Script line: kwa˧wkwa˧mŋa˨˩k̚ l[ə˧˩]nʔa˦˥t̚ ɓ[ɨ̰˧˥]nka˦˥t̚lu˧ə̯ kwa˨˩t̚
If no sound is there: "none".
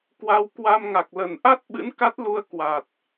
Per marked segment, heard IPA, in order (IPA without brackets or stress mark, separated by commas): ə˧˩, ɨ̰˧˥